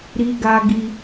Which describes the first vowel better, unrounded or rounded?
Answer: unrounded